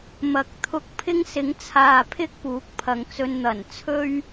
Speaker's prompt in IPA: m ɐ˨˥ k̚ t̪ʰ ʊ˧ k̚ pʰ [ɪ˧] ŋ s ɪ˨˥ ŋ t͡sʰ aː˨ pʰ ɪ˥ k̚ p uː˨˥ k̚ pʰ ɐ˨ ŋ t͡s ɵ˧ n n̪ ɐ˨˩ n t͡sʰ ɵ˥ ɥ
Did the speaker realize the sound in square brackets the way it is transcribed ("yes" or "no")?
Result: no